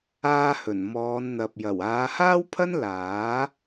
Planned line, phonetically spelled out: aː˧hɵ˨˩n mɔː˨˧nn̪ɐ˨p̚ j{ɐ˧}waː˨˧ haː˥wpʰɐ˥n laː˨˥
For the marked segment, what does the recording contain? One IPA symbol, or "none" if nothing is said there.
ɐ˨˩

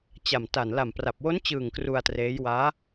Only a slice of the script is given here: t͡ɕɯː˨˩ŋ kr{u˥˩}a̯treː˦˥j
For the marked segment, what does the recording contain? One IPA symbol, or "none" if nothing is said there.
u˧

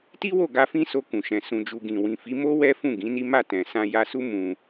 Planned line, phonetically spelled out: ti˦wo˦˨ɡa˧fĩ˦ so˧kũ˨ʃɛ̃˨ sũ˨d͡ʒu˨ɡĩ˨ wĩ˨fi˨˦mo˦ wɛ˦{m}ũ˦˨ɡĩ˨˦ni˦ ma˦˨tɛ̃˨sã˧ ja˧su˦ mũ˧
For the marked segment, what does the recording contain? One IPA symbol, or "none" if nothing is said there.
f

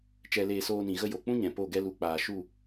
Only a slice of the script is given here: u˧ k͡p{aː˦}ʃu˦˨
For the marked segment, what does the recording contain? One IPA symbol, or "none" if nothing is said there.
aː˨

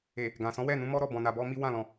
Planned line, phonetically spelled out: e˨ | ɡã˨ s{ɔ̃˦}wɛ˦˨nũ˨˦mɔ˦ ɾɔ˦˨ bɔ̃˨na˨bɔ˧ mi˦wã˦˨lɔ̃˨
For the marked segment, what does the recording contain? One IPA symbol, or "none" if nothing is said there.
ɔ̃˨˦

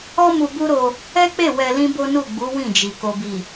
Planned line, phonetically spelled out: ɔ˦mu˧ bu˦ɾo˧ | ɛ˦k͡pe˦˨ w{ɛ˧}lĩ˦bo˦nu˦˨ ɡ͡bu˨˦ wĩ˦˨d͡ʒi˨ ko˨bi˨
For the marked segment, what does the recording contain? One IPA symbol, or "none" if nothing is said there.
ɛ˧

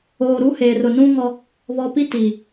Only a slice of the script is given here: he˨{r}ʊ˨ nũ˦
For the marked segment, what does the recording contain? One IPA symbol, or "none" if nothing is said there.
r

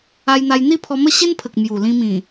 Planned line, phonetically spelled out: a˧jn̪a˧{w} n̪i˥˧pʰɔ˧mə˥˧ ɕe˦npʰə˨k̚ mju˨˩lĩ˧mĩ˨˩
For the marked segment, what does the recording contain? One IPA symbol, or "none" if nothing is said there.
j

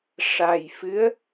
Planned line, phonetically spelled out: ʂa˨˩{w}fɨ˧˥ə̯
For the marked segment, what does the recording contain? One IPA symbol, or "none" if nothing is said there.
j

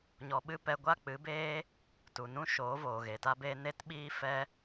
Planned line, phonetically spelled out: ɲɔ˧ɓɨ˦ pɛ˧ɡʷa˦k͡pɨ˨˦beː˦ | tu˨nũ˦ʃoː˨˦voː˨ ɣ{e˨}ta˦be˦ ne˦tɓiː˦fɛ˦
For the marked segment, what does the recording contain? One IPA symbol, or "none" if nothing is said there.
e˨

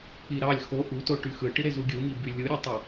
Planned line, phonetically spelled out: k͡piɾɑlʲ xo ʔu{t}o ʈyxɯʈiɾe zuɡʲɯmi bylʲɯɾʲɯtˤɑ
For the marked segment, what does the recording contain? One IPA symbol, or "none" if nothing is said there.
t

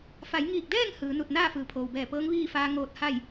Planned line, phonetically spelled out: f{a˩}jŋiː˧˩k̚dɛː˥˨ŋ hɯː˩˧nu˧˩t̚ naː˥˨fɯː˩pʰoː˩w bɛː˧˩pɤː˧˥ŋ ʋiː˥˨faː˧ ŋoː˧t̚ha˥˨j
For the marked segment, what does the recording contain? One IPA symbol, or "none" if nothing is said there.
a˩˧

